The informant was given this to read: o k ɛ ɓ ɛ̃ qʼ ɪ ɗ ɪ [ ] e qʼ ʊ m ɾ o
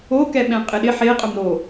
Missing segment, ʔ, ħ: ħ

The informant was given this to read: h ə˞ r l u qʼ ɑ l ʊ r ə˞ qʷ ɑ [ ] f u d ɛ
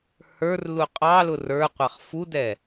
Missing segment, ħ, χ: χ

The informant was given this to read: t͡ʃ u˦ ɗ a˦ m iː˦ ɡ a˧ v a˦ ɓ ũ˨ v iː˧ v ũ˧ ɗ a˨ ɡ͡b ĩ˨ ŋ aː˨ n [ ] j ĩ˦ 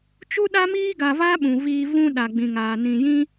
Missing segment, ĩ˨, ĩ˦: ĩ˨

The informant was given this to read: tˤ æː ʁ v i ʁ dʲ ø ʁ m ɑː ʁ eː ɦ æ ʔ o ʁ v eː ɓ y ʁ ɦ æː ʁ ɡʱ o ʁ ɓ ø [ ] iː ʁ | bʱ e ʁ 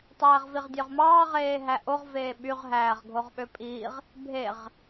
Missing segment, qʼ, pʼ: pʼ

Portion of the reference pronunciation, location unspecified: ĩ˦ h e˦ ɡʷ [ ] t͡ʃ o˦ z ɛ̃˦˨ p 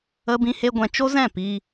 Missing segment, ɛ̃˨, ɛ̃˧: ɛ̃˧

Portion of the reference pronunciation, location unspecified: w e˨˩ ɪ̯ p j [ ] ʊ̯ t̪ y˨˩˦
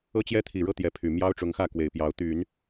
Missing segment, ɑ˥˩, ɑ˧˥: ɑ˧˥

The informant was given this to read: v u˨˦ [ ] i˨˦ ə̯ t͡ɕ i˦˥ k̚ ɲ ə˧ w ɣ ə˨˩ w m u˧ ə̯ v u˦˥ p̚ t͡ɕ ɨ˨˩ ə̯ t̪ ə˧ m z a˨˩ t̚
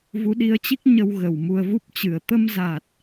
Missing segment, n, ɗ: ɗ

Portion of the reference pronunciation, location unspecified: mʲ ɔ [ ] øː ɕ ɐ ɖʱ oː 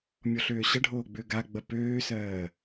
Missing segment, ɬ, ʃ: ɬ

